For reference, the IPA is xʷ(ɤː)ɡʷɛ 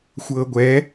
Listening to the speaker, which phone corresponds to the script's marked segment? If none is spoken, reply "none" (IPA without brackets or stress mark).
ɤː